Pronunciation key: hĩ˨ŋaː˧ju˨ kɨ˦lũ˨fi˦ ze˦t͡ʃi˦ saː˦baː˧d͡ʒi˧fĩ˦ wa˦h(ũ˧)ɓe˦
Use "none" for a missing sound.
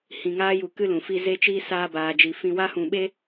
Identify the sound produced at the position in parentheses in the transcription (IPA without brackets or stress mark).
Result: ũ˧